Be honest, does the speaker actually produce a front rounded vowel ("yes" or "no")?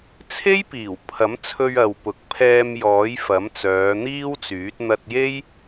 yes